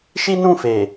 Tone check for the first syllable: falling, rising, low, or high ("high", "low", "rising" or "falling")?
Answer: high